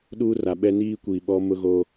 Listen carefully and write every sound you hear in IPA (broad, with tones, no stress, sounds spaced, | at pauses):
ɗ uː˦ r a˨ ɓ ɛ˦ n iː˦ kʷ i˨ ɓ ɔ˦ m ʊ˦ ɣ o˦